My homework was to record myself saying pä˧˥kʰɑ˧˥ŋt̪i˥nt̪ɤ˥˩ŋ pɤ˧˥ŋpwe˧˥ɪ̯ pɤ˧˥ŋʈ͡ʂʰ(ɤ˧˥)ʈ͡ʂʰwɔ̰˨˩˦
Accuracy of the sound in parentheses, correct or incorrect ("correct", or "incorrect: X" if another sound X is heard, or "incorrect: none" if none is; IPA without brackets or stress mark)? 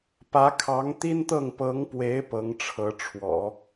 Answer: correct